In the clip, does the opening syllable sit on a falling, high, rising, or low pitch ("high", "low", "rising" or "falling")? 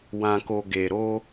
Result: low